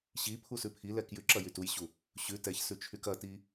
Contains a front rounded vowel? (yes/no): yes